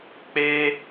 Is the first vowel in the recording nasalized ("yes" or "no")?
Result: no